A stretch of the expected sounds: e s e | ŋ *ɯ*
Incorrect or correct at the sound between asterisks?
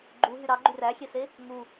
incorrect: u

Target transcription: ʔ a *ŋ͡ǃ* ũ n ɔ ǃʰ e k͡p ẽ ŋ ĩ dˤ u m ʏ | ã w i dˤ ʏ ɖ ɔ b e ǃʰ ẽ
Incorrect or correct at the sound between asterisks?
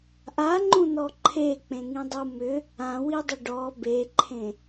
correct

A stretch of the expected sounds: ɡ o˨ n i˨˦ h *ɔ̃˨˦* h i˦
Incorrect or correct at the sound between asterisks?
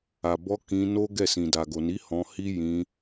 incorrect: ɔ̃˧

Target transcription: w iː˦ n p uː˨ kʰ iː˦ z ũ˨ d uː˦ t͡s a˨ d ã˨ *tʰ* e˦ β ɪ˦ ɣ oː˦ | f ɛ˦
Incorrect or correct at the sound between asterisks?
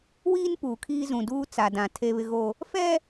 correct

